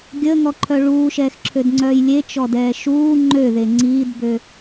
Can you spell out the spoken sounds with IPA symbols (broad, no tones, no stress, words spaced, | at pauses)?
ɡʲəːŋɔǃʰœ ɭuːʃɛːxǁʰødŋ͡ǀœːj lʲet͡ʃɔdɛː ʃuː ŋ͡ǃøðe ŋ͡ǀiːdbø